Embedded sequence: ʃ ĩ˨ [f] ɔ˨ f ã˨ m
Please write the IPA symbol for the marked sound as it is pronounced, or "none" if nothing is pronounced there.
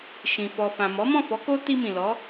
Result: f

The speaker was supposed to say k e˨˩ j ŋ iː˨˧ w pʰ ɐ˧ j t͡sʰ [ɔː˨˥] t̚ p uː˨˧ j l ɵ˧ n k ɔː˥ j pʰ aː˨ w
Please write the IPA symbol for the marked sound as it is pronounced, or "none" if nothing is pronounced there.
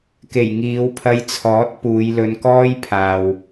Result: ɔː˨˥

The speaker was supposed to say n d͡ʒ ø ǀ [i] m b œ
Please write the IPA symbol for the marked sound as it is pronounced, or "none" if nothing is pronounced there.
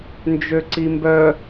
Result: i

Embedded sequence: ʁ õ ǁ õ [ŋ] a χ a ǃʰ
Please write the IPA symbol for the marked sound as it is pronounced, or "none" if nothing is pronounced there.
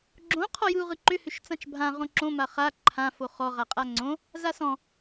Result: m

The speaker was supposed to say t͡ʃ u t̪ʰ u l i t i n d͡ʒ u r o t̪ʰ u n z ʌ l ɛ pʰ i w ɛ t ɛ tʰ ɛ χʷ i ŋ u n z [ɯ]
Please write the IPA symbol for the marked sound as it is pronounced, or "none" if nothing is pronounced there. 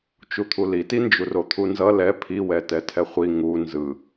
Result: ɯ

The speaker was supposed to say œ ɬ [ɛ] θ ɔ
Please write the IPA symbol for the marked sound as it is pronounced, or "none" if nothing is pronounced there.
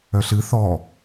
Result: ɨ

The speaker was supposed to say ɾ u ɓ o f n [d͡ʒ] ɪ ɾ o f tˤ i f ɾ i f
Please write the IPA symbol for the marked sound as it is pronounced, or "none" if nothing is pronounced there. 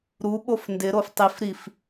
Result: d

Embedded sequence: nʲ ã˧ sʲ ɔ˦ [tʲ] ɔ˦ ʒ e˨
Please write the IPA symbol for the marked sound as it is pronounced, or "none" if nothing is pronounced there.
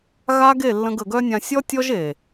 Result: tʲ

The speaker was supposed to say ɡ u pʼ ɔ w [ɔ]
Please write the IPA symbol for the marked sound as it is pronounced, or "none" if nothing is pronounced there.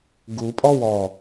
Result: ɔ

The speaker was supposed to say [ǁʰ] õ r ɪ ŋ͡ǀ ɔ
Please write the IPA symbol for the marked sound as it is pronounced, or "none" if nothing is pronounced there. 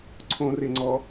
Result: ǀʰ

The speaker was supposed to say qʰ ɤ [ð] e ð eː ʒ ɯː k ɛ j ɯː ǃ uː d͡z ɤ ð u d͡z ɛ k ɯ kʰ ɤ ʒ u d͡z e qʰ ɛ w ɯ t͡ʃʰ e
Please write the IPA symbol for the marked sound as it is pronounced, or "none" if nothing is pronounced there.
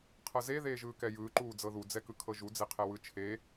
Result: z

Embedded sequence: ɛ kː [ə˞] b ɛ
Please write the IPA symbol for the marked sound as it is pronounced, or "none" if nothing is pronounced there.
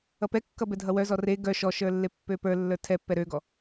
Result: ʌ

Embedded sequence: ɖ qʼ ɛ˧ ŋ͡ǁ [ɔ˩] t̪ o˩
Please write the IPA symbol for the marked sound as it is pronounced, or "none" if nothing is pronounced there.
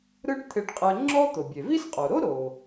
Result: ɔ˥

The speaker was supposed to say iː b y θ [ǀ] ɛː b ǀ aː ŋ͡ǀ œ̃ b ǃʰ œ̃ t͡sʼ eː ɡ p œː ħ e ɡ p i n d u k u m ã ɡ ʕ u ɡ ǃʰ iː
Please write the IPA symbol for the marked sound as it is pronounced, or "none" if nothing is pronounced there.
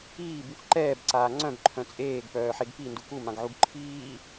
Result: ǃ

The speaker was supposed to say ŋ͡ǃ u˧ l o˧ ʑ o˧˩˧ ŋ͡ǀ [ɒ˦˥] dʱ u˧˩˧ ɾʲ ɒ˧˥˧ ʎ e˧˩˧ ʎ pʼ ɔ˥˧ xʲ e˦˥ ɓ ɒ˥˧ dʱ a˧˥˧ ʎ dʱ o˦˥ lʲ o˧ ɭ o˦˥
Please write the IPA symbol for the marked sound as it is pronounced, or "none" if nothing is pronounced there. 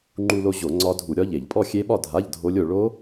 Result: ɒ˦˥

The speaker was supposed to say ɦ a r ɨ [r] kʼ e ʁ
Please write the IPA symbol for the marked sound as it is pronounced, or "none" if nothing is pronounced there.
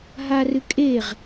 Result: none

